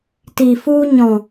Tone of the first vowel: low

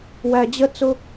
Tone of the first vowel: low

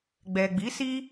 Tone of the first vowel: low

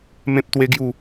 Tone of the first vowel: high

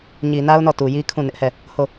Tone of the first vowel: low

